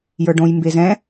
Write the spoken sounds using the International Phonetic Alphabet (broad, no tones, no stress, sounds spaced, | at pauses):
j ə˞ ɖ õ j m b e z ɛ̃